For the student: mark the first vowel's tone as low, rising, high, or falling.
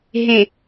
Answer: low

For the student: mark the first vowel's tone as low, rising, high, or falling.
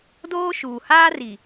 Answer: high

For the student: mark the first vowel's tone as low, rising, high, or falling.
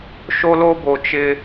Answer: high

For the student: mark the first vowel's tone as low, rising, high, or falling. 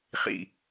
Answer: low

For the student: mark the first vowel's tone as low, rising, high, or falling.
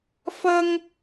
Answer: high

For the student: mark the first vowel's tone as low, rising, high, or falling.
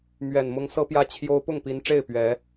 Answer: low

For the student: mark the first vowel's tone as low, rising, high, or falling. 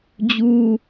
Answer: high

